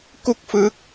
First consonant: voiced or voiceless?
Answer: voiceless